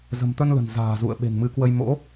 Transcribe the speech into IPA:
z ə̤˨˩ m t̪ ə˧ n l ə̤˨˩ n z a̤ː˨˩ z ṵ˧˨ ə̯ ɓ e̤˨˩ ŋ m ɨ˨˦ k w ə˧ j m o̰˧˥

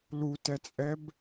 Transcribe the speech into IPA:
l u t ɛ t͡sʼ ɛ b

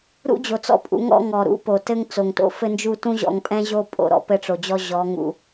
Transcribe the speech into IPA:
ɾ ṵ˦ d͡ʑ o˨ t͡s ɔ̰˦ pʼ ṵ˨˦ ŋ ɔ̰˦ ŋ ɔ˨ ɾ ṵ˦ p o˨ t ɘ˦ ŋ t͡s o˨ ŋ t o̰˦ f ɘ˦ n d͡ʒ u˦ t ũ˦ ʑ ɔ̰˨ ŋ pʼ ɛ̃˦ ʑ o˦ pʼ o̰˦˨ ɾ ɔ̰˦ p ɘ˦ ʈ͡ʂ o˨ d͡ʑ ɔ˦ ʑ ɔ˨˦ ŋ ṵ˨

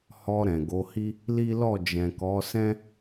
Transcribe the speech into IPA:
h ɔ˧ ɾ ɛ̃˨ ɡ o˨˦ h i˦ | l i˦ l ɔ˦˨ d͡ʒ ɛ̃˨ k ɔ˨˦ s ɛ̃˦

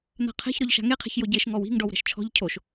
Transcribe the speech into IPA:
n̪ a̤ qʰ ɛ̤ ç ɾ ɔ ʎ ʃ a̤ ŋ e qʰ e̤ ç j o ɟ e ʃ ŋ ɔ w i̤ ŋ ɖ ɔ w ɾ ɛ̤ ʃ t͡ʃʰ ɔ̤ ʎ cʰ o ʃ

